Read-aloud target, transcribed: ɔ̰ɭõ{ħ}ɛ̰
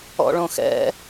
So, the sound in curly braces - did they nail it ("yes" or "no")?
no